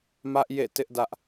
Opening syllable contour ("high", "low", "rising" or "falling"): high